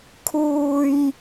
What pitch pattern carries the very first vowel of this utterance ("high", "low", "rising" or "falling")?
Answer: low